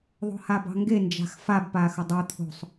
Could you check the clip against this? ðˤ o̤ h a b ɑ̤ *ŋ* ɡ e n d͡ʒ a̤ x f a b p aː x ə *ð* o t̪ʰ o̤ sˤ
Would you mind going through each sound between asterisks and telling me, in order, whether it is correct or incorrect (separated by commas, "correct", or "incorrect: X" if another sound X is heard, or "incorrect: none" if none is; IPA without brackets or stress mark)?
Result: correct, incorrect: dˤ